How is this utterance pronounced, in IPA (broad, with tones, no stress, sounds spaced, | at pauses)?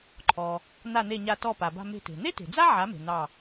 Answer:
ǃʰ ɔ˩ | n̪ a˧˩ n̪ e˧˩ ɲ a˧˩ t ɔ˧˩ p a˩ b a̤˧˩ m e̤˧˩ t e̤˩ n̪ e˥ t e̤˩ d͡z a˥ ʕ a˩˥ m e̤˩ n̪ ɑ˧˩